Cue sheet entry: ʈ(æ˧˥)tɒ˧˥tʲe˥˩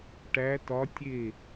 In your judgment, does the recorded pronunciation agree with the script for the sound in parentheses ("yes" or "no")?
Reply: yes